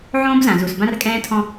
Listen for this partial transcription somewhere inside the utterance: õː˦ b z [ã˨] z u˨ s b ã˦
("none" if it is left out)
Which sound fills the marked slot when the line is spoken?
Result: ã˨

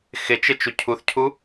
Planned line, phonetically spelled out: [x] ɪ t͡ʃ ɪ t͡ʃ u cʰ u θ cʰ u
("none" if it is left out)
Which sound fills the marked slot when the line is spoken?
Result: x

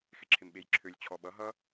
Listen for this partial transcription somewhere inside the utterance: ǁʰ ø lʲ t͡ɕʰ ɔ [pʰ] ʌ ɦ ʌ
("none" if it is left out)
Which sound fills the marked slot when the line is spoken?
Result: ɓ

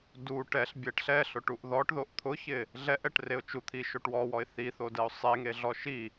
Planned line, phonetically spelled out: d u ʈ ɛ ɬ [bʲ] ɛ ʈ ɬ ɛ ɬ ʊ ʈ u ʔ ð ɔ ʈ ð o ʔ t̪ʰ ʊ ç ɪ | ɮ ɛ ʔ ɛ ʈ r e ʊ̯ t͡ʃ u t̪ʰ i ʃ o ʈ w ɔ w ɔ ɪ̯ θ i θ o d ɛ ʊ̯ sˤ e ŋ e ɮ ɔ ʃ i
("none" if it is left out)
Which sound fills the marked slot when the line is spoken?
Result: bʲ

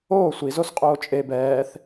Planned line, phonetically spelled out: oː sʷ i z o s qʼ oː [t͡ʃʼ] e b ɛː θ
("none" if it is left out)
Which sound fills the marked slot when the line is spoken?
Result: t͡ʃʼ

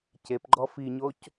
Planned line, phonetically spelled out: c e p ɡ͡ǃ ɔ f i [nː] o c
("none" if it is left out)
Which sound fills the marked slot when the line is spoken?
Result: ɲ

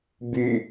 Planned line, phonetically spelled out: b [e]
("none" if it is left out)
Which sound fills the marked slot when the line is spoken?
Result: y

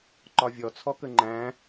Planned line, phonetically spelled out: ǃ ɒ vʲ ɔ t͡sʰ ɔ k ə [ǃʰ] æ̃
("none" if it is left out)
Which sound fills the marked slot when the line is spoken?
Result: ŋ͡ǃ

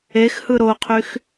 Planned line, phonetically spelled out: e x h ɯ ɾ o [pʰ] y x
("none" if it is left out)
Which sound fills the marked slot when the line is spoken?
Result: qʰ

